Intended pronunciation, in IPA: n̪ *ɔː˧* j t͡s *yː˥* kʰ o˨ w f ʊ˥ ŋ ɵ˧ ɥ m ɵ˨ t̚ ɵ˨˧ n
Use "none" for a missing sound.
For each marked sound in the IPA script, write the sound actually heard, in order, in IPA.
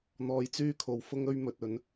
ɔː˧, yː˥

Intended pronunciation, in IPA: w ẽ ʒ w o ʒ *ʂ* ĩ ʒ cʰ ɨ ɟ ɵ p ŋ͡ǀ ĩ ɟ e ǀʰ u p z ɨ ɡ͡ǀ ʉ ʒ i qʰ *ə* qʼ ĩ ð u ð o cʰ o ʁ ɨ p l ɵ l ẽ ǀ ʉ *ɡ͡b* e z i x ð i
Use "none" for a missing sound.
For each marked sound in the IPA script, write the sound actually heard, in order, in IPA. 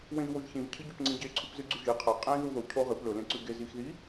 ç, a, ɡ

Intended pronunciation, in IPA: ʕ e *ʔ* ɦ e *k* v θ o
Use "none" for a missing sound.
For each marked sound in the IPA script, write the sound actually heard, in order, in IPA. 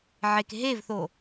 k, none

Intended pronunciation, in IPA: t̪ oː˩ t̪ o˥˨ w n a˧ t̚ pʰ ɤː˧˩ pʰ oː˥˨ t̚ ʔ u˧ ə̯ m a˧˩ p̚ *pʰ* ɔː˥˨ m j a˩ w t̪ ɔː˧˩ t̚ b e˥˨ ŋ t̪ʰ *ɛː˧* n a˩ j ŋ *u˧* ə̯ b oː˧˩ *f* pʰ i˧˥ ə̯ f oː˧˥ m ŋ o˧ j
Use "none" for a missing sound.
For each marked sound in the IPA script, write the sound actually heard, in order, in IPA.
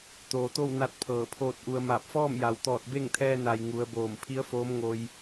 f, ɛː˧, u˩˧, m

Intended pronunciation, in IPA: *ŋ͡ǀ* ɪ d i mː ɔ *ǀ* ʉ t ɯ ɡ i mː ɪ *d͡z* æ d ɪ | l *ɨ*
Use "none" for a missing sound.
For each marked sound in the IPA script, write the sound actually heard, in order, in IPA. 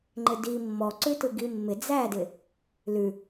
ŋ͡ǃ, ǀ, d͡z, ʉ

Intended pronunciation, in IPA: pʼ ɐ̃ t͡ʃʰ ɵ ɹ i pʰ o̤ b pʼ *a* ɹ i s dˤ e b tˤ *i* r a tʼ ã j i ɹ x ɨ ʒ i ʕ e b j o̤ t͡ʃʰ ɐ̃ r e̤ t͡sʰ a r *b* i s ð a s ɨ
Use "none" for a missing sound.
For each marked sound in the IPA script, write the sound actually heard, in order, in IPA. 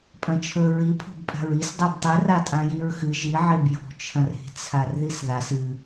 a̤, i, ð

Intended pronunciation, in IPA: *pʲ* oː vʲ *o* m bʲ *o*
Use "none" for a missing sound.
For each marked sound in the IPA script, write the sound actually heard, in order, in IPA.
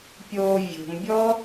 pʲ, o̤, ɔ

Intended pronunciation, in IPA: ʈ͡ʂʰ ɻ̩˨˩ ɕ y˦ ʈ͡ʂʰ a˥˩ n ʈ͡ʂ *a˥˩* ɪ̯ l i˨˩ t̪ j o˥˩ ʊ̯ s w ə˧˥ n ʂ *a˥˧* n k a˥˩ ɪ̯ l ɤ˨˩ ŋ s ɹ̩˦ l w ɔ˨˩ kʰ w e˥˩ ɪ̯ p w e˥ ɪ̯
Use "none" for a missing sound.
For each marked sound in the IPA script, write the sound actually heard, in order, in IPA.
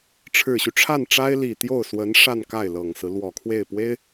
a˥, a˥˧

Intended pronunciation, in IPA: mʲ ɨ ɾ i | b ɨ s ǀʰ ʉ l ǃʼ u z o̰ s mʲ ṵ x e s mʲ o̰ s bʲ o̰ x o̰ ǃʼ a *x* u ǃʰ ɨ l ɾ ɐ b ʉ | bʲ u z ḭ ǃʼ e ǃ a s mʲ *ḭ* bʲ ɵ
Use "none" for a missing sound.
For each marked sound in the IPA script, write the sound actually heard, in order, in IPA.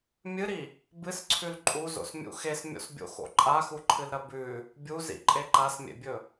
x, ḛ

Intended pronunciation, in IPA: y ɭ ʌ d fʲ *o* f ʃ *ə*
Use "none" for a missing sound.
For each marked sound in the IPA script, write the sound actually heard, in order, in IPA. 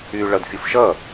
u, ʌ

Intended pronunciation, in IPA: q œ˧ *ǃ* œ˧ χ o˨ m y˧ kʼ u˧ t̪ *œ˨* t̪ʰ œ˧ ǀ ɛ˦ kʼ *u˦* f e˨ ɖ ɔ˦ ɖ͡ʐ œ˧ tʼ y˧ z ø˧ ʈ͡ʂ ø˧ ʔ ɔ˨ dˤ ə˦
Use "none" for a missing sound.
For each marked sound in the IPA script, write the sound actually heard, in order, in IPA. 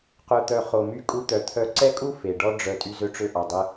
t̪, œ˨, u˦

